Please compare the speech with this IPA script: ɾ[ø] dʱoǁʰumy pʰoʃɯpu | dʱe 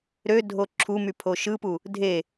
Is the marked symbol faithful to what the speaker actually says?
yes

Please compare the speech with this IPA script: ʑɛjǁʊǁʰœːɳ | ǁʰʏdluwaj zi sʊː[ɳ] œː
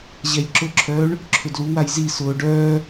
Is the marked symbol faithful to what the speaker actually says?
no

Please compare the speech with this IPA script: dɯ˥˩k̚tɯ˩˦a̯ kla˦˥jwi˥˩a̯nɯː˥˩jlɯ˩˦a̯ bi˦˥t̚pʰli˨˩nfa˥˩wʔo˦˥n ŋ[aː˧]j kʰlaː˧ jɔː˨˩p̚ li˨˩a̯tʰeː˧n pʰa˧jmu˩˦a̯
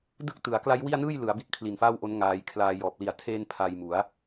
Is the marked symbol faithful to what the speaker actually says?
yes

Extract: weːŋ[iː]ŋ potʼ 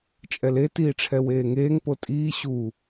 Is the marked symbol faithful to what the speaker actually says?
no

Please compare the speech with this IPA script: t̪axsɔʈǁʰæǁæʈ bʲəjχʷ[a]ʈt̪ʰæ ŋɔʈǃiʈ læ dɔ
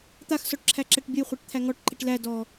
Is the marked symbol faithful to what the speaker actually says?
no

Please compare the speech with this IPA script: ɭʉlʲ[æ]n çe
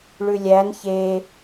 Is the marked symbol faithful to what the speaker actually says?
yes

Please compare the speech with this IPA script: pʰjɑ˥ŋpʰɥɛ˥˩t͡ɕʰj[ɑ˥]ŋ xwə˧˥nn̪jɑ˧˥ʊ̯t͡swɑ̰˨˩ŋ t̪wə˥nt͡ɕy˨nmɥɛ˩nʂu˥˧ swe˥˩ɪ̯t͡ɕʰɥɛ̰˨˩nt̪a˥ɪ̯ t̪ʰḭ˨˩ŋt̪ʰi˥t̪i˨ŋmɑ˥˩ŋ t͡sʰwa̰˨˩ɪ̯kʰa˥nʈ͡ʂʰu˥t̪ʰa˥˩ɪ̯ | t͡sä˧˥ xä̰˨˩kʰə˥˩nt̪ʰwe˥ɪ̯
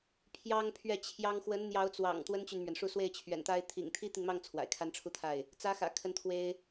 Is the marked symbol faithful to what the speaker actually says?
yes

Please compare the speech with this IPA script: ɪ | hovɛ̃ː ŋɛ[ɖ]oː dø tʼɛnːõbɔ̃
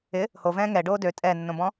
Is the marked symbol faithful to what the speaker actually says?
yes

